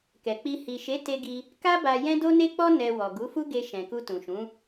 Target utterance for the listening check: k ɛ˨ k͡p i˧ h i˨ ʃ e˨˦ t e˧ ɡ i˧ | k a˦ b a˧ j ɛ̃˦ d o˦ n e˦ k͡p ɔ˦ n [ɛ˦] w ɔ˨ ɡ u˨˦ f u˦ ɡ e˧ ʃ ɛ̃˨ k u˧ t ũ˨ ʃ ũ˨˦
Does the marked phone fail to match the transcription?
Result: yes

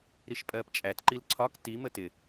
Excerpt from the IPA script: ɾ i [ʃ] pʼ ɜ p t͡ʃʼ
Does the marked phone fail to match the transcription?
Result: no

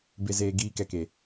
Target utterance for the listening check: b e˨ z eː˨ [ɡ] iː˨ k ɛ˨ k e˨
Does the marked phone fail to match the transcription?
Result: no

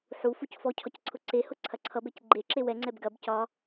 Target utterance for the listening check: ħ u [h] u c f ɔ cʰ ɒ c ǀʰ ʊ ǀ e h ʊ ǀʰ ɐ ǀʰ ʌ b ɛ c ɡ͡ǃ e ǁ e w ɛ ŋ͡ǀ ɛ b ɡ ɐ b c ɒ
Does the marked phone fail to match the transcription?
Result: yes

